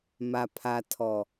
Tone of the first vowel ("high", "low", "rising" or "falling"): low